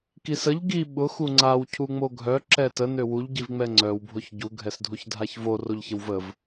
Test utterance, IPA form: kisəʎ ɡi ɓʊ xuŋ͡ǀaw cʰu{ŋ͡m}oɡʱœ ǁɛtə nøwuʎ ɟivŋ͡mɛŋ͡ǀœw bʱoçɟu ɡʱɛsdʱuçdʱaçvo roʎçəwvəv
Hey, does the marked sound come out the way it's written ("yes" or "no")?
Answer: yes